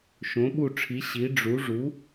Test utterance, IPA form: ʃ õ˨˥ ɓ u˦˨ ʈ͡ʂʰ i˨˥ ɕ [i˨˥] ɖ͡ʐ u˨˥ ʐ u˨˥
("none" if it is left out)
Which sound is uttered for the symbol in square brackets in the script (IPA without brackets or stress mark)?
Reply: i˨˥